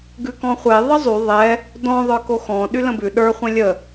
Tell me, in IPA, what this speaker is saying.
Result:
ɡ ʉ k ɔ̃ χʷ e ðˤ ə zˤ y ðˤ ɛ | d ɔ̃ ðˤ ə˞ k o x ɔ̃ ɗ y l ə̃ b ʉ ɗ ə˞ χʷ ɛ̃ lʲ ə

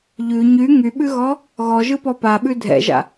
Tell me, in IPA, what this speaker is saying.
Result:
ʎ ʉ ɲ y ŋ y ɓ ʉ ɣ ɔ | ɣ ɔ ʒ ɯ p ɔ p a ɓ ʉ dʱ ɛ̰ ʒ a̰

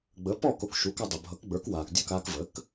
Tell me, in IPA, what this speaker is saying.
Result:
ɡ͡b ə˩˥ p ɔː˥˩ k o˥˩ k ʃ u˩˥ k a˧ dˤ ə˩ bʱ ʌ˩˥ k ɡ͡b ə˞˩˥ k w aː˩ k dʲ o˥˩ k aː˧ k v əː˩˥ k

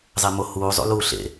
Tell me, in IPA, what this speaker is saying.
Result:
zˤ e m o h uː zˤ ṵ l uː ɬ ḛ

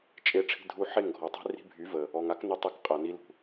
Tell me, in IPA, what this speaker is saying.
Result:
t͡ʃʼ e˧ ʈ͡ʂʰ i̤˧ dʱ u˧ ħ e˦˨ ŋ ɡʱ ɔ˨ tˤ i̤˦ r i̤˧ bʱ y˨˦ v ə˨ | ɔ˨ ŋ a˦ k n ɵ˧ tˤ e˧ k qʼ a˨ n i˧ l ṳ˨

